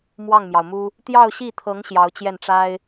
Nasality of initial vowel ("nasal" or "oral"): oral